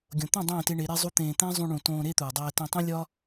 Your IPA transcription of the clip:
ɡʲõ˨t̪õ˦˨ dˤẽː˦˨te˧ɳe˨˦ ɾe˦zˤu˦t̪ẽː˧ t̪æ̃˦zˤũ˧ɳũ˨ tõː˧ɾe˦t̪uː˨ dˤæː˧tẽ˧tˤĩ˦ lʲɒ˦

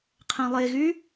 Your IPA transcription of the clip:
qʰɛ̃lˠeɣy

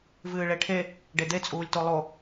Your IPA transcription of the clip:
vɨːɭeʈʰe | ɖed̪e t͡sʼuːlʲtolˠo

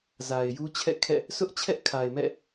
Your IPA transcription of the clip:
za˨ɪ̯ju˦t͡ɕʰɛ̰˦˨kʰɛ̰˦˨ | sʊ˦ʔt͡ɕʰɛ˦ʔkʰa˨ɪ̯ mɛ̰˦˨

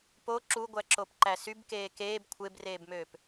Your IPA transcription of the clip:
po ǁuɡʷæǁopǃæ sybkeː keːb kʷʰebreːbmøːp

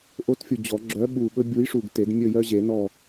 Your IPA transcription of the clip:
ʔo˨˥tfʲu˨˩ d͡ʑɔ˨˩˦ɡ͡ǁœ˨˥ ɓu˨˩ ɓɵ˦bʲu˨˥jʂu˨˩ɡ te˨˩˦dmʲɵ˦˨jœ˦ʑe˨˩˦ nɔ˦˨

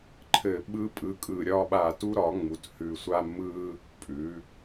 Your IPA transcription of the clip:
ǃʰɘ˨˩ ɓɯ˧ pʼɯ˩˧kʼɯ˨˩ɾʲɒ˧ ɓa˨˩tu˧ɾɒ˩˧ŋ͡mu˩˧t hʉ˨˩sʷa˧ mɯ˧ | pʼʉ˩˧

